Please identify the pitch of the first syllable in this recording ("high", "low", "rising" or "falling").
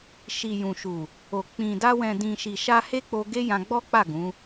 low